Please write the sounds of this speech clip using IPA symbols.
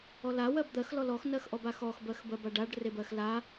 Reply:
ɔ l a w ɜ b d̪ ɜ x l ɔ l ɔ x n ɜ x ʔ ɔ b a x ɔ x b ɜ x b ɜ b a ɖ a ɖ r e b ɜ x l a

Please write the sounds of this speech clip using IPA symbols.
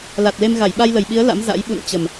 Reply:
l a˨˩ t̚ l e˧ m ɣ a˧˩ j ɓ a˧ j l ə˨˩ j ɓ i˨˦ ə̯ l a̰˧˥ m z a̰˧˥ j ɓ ṵ˧˨ n t͡ɕ ə˨˩ m

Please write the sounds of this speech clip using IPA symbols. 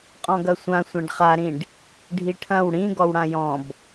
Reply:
qʼ ɔ̃ ɡ ɐ sʷ ã sʷ ã ɖ χ a ɾ ĩ ɖ | ɖʱ i ʈʰ ɐ̃ w ɽ ĩ ɡ ɔ w ɽ ã j ɔ̃ b

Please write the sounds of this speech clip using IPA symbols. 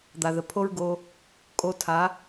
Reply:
d̪ a˨ ð ə˨ pʰ o˦ ɹ ɡ o˧ | kʼ o˧ tʰ a˨˦

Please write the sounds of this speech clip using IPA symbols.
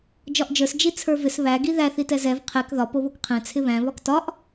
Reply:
d͡ʒ ɒ ʔ d͡ʒ ə˞ s d͡ʒ i t͡sʰ ə˞ v ɪ s β æ ɡ i ð æ θ i t ɛ z ɛ v qʰ ɛ k ð ɒ p o β o k qʰ ɛ̃ t͡sʰ ɪ β æ̃ β ɒ k t ɒ ʔ

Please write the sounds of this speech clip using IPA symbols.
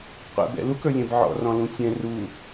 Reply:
qʷ ɛ̰ b ɛ̰ l u k ə˞ lʲ ɛ̃ b ʕ ɔ̰ r ɔ̃ l ũ sʲ ɛ̃ r u

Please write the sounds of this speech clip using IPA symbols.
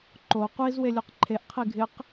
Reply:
ǃ o qʷ i z w e lʲ u q ǃʰ e ʔ qʰ i ɡʱ ɪ q

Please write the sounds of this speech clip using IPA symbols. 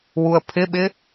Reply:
w u ə̯ pʰ ɪ ɓ ɪ

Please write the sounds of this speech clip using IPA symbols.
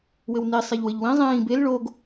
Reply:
w ɘ w n i sˤ e ʎ w ɘ ʎ w ĩ zˤ ĩː b e l ɭ o ɡ

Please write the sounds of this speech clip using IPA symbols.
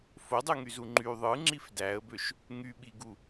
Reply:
f o dˤ ɯ ŋ y z u ŋ͡ǃ y ðˤ ɯ ŋ͡ǁ i f d æ ə̯ b ø ʃ | ŋ y ɓ i ɡ u

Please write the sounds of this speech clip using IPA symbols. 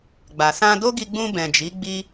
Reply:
ɡ͡b a˨ s ã˧ d o˦ ɡ i˧ ɡ͡b ũ˧ b ɛ̃˨ d͡ʒ i˨˦ ɡ͡b i˦

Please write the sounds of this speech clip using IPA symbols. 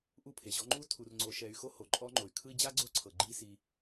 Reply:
ʔ u˦ pʰ e˩ ʑ ɔ˦ ŋ͡ǃ u˥ tʰ u˨ r ŋ͡ǀ o˨ ʃ ɛ˨ y̯ x o˦ h o˩ ǃʼ ɔ˥ ŋ͡ǃ o˨ y̯ kʰ ɯ˦ i̯ d͡ʑ a˥ ɡ͡ǀ o˦ ǀʰ ɤ˩ ɡ͡ǃ i˦ s i˨

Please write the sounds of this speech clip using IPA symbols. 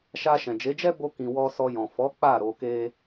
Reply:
ʃ a˧ ʃ ɛ̃˨ d͡ʒ e˨˦ d͡ʒ ɛ˦ b o˧ k ĩ˨ w ɔ˧ s ɔ˧ j ɔ̃˨ f ɔ˨˦ k͡p a˦˨ ɾ o˧ k e˦

